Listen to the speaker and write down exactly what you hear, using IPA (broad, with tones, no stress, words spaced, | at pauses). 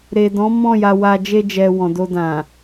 ɾe˨ dɔ̃˨˦ mɔ̃˦˨ja˧ wa˧ d͡ʒe˧d͡ʒɛ˨ wɔ̃˨do˧ dã˨